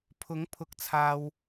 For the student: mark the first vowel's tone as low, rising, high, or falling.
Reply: rising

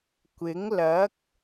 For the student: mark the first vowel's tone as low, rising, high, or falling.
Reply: rising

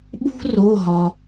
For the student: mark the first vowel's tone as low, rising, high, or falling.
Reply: high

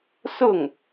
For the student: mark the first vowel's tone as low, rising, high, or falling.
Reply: falling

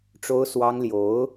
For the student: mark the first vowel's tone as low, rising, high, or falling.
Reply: high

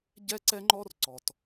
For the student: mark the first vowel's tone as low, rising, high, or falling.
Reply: high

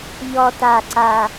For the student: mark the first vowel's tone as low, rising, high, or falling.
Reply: low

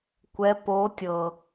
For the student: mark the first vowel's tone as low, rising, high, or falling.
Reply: rising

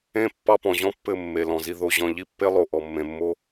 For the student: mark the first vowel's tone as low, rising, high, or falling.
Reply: falling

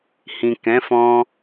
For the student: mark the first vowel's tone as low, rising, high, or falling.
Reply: low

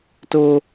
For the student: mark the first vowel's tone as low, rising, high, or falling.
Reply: high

